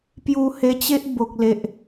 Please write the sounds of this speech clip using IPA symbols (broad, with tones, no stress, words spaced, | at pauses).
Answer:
pju˧he˧t͡ɕe˦ʔ bo˨k̚le˨ʔ